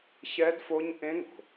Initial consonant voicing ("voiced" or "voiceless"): voiceless